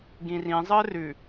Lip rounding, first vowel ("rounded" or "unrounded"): unrounded